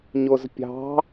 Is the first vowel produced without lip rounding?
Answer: no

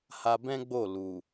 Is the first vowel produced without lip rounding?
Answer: yes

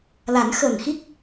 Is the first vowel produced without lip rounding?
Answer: yes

